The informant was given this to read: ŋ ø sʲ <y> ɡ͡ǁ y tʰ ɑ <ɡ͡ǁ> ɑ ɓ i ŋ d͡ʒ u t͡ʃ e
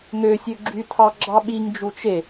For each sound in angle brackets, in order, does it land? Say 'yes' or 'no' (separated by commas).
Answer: no, yes